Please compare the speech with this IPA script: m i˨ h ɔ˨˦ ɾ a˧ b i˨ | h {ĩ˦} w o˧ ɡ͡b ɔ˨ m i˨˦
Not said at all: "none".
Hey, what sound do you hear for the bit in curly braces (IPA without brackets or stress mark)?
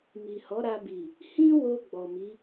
ĩ˦